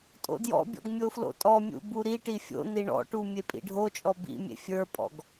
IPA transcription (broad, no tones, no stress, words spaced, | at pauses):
tʼo̰djɔ̰bʲɔ̰ɡ mʲoflo̰tʼɔmʲṵ buɾiʈi fʲo̰ niɳɔ̰ʈu mʲepʼḭɖʱot͡ʃʼɔ bḭmʲḛ fʲə˞pʼɔ̰ɡ